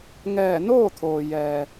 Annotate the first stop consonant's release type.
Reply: aspirated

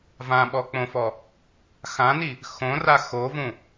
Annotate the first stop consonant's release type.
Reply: implosive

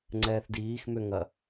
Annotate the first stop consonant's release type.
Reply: click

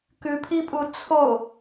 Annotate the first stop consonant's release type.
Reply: plain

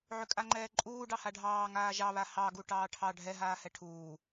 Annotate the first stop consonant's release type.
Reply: ejective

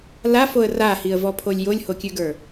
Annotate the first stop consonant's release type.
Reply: aspirated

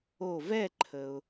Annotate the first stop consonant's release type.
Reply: click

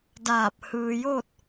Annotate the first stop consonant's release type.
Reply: plain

